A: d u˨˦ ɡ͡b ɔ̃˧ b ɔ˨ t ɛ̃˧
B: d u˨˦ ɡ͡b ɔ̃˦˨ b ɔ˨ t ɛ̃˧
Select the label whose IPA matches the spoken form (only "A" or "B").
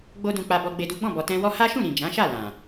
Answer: B